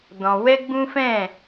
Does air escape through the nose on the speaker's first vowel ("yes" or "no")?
yes